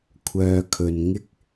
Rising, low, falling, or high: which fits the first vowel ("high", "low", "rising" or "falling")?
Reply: low